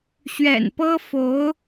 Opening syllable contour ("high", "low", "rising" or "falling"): low